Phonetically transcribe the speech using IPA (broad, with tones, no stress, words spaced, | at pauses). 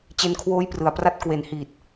t͡ɕe˧nkʰwoː˦˥j prɯ˨˩a̯pra˥˩t̚ kwe˨˩nhiː˨˩t̚